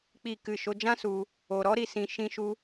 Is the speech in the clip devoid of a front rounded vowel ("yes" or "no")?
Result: yes